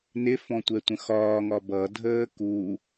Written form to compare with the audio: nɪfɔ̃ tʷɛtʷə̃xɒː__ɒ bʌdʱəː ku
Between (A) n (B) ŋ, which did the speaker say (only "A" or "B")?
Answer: B